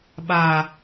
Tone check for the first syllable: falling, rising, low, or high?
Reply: low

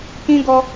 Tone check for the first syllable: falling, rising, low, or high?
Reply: high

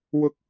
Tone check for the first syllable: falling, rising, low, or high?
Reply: low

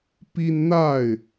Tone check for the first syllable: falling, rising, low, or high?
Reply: high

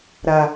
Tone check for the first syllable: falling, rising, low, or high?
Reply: low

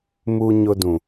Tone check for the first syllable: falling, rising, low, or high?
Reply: high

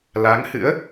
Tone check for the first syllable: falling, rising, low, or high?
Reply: rising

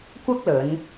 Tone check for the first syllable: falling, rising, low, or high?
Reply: high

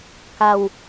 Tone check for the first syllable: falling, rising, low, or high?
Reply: low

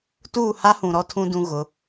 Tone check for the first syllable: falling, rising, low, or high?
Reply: falling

